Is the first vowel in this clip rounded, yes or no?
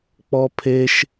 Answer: yes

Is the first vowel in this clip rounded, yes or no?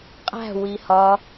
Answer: no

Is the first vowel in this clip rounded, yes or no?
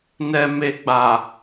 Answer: no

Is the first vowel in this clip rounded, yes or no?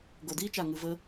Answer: yes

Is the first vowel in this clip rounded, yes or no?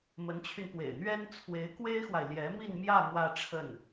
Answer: no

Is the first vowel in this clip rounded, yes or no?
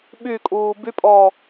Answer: yes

